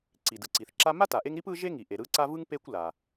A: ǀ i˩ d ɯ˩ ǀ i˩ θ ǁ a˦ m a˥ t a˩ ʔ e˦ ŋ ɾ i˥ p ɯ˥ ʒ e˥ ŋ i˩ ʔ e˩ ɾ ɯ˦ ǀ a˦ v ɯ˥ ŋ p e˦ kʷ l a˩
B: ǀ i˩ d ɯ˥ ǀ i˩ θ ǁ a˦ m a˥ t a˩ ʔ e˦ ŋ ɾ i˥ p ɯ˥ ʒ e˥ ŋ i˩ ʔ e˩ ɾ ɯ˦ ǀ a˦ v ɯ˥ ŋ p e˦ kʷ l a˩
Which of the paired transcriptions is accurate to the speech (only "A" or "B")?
A